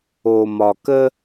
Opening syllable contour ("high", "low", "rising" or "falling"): low